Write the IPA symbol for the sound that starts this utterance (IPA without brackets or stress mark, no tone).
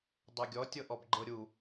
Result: dˤ